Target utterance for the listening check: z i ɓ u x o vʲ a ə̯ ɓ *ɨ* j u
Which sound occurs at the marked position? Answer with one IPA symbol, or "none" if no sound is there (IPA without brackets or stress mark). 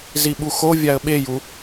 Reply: e